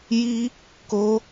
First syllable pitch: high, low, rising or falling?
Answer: high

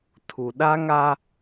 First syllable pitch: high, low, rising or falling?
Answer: low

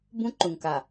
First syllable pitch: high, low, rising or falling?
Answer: high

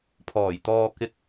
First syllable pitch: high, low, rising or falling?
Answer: low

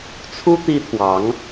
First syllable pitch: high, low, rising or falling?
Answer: high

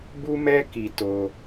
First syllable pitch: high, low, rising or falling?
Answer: high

